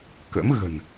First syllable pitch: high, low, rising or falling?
rising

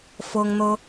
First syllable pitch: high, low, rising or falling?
high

